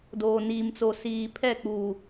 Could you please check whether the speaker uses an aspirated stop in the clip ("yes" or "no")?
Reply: yes